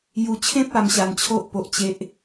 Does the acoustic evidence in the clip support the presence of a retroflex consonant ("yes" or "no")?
no